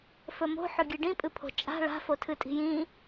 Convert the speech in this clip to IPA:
fɵmo̤ħɵɡʲɨ ɖĩpʼɨpʰo̤ t͡ʃʼa̤ ɭa̤ fotʰɨtʼi̤jĩ

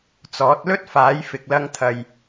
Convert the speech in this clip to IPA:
t͡sɔː˨˥t̚ lɵ˥t̚ faː˨˥jfɪ˨k̚lɐ˧ŋt̪ʰɐ˨j

